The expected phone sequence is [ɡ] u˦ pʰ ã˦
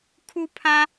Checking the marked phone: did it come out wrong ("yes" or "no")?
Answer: yes